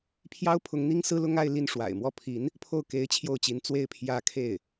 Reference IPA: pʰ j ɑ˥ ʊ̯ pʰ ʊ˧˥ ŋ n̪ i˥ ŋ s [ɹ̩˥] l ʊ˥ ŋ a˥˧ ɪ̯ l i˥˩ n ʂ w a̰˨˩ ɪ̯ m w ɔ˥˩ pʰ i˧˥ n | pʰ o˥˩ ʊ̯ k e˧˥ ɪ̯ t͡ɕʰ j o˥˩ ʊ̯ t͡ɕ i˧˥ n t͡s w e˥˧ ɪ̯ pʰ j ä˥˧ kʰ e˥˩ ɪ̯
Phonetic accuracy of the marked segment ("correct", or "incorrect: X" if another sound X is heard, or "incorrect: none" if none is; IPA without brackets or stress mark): correct